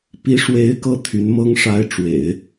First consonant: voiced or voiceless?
voiceless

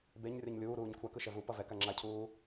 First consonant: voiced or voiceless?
voiced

